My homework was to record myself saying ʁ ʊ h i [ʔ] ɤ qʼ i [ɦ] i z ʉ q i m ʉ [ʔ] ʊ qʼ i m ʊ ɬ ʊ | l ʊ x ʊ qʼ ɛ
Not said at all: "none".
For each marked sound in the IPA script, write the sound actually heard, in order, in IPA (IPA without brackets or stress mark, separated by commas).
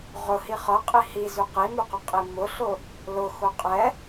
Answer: χ, h, q